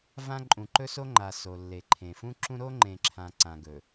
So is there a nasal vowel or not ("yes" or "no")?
yes